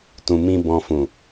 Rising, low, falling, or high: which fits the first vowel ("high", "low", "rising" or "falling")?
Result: low